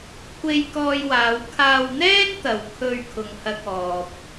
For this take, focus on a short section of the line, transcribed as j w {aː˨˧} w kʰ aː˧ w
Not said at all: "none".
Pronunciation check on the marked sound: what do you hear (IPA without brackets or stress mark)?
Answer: aː˨˧